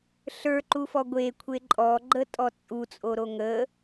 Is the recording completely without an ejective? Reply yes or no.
no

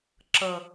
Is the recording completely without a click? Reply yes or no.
no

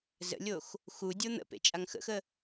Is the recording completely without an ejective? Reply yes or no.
no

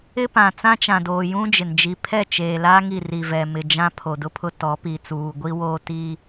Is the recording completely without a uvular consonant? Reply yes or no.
yes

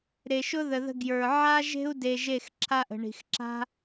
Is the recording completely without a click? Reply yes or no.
no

